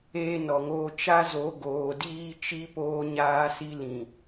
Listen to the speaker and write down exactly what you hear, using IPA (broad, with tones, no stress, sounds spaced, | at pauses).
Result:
eː˦ n ɔ˨ ŋ oː˦ t͡ʃ a˦ z o˨˦ ɡ oː˨ d iː˦ t͡ʃ i˦ p oː˦ ɲ aː˦ s i˦ l ĩ˨